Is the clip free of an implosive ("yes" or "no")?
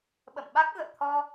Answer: no